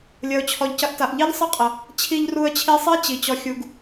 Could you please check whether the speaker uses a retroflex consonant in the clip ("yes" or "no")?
no